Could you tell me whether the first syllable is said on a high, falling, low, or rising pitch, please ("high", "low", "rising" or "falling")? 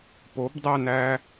rising